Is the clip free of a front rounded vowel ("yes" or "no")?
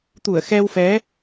yes